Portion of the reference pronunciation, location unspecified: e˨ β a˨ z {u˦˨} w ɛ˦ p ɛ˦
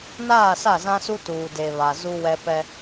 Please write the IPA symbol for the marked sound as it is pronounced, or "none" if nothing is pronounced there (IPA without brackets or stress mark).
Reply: u˦